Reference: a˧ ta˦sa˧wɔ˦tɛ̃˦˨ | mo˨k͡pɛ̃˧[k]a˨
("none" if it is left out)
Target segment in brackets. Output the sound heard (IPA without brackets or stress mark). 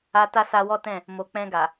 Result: ɡ